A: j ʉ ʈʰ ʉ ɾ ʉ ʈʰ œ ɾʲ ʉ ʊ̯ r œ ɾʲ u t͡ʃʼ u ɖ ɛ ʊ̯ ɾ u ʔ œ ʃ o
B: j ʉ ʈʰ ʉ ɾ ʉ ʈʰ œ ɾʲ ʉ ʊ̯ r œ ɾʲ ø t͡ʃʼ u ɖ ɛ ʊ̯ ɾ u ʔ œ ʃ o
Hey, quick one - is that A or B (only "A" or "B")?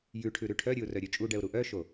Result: B